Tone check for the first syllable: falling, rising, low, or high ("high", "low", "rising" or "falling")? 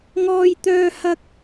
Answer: high